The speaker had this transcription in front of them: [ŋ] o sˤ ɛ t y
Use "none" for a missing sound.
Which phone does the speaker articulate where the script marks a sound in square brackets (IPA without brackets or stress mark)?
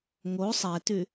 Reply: ŋ